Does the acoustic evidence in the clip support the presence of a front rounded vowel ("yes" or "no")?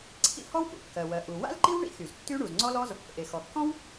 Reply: yes